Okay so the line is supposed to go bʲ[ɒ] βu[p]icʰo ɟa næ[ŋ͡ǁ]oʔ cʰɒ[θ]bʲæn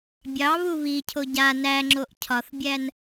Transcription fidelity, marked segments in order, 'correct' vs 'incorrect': incorrect: ɑ, incorrect: β, correct, correct

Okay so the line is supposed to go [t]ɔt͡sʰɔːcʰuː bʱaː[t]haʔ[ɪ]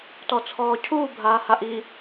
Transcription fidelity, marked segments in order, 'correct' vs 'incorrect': correct, incorrect: none, incorrect: i

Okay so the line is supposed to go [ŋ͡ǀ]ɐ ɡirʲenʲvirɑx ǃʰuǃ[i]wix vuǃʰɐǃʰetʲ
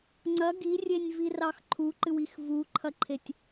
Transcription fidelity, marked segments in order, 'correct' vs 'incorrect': correct, incorrect: ɨ

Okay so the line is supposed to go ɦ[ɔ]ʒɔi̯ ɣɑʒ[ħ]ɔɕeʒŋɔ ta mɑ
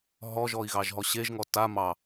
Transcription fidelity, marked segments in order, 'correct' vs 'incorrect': correct, incorrect: ɦ

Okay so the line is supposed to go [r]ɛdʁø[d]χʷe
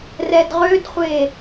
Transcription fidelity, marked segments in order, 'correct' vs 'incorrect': correct, correct

